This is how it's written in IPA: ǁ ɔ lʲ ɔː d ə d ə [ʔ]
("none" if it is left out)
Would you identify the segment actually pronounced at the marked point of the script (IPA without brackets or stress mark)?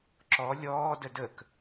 k